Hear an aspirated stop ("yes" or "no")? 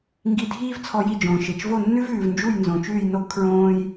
yes